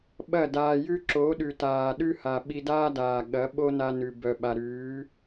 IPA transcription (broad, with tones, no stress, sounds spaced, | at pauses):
ɓ ɐ˦˨ d aː˨ j ʉ˦ ǁ o˨˦ ɗ ʉ˨ t aː˨ ɗ ʉ˦ h a˨ ɓ i˧ d aː˦ d aː˨ ɠ ɐ˨˦ ɓ o˦ n a˧ n ʉ˨ b œ˨ ɓ a˨ ɾ ʉː˨˦